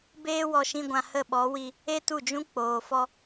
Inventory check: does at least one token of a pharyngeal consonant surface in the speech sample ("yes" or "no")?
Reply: no